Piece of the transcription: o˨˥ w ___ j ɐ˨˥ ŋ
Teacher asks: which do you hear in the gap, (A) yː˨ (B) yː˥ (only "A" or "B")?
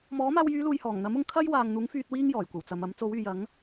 A